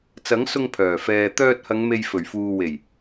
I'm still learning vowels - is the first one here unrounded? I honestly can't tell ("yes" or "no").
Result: yes